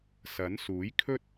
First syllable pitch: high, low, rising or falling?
rising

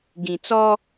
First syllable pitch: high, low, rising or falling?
low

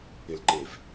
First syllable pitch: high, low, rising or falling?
low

